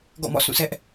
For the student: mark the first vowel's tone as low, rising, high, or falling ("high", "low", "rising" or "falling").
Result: falling